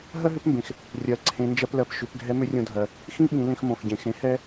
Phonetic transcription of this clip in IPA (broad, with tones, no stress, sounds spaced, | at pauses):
ɦ ɜ˥ ɦ ʏ˧˥ p m b ẽ˩ x | rʲ ɜ˩˧ ǀʰ ẽ˩˧ n d͡ʒ ɜ˧ p l ɜ˩ p ʃ ʏ˩˧ p ɡʱ ɛ˧˥ m ʏ˧˥ rʲ õ˧ dʱ ɜ˩ | x ĩ˥ ɓ ĩ˩˧ l ẽ˧ x m õ˩ x ɟ ẽ˩ x ẽ˩˧ h ɛ˥